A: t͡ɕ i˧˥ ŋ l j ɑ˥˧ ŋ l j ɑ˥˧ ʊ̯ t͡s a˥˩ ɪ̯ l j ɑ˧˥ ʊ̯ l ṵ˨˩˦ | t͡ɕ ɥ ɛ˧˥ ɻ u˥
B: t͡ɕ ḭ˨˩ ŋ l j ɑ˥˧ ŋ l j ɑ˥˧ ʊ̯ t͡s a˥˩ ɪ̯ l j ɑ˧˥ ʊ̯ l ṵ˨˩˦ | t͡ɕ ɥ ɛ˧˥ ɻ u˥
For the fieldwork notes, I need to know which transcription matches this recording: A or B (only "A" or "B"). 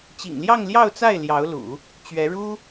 B